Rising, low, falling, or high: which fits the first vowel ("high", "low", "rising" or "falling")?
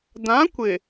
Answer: rising